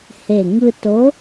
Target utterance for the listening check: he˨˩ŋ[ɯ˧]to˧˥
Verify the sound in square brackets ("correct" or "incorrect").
correct